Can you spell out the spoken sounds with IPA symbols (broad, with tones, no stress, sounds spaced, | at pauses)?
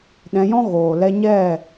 ɗ ɛ̃˧ j ɔ̃˦ ɣ oː˨ l ɛ˧ ɲ ɛ˦˨